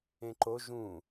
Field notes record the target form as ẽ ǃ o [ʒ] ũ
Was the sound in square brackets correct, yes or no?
yes